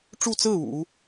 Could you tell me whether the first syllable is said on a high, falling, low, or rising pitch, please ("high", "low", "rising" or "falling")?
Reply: falling